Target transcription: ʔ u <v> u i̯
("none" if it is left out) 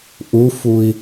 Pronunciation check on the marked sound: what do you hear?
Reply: f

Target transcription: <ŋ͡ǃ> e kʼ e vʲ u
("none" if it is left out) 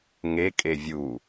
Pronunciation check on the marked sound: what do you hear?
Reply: ŋ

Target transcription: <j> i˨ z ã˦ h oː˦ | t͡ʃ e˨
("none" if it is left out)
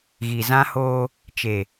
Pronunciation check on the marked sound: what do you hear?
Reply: ɣ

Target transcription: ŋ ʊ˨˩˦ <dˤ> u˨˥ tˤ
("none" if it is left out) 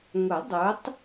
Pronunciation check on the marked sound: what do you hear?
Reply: dˤ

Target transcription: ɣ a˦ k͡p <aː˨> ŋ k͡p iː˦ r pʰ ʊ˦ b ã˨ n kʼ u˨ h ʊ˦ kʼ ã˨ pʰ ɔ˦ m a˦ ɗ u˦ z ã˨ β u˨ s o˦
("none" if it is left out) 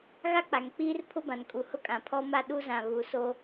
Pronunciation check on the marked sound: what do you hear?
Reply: a˨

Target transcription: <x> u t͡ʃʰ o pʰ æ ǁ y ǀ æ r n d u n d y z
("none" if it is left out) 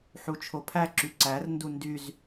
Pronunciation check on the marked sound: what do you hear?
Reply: ħ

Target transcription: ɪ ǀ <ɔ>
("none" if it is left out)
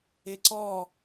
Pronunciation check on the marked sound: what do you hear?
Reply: ɔ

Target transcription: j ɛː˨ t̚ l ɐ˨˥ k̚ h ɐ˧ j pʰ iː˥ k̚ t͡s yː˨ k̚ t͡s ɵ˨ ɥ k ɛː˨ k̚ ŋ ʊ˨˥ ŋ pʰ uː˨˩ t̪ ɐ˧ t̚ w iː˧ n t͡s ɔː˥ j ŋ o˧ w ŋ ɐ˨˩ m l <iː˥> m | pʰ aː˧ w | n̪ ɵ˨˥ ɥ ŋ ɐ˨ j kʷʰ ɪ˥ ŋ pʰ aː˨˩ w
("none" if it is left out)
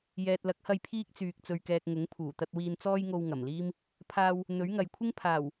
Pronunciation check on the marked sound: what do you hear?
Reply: iː˥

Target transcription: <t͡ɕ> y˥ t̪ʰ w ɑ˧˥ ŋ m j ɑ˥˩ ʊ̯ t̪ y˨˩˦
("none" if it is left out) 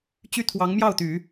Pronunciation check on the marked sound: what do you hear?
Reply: t͡ɕ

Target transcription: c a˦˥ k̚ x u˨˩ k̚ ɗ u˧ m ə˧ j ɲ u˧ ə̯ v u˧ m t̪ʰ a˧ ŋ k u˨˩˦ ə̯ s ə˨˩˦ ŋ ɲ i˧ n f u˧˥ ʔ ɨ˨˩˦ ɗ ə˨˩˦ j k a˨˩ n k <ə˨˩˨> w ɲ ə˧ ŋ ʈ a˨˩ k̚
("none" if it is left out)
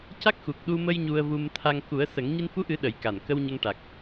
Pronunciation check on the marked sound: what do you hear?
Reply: ə˧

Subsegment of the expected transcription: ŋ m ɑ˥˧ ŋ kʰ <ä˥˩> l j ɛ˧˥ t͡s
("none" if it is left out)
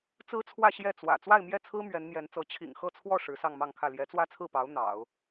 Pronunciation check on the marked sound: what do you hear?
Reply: ä˥˩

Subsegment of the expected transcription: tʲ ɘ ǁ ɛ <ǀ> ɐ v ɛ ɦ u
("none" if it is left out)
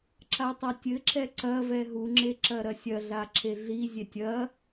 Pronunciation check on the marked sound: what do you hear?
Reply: ǀ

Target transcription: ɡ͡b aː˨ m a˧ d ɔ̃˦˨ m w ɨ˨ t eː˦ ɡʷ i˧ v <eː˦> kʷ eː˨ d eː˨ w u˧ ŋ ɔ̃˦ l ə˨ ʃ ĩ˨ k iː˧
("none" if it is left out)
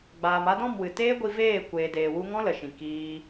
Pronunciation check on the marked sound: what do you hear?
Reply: eː˦˨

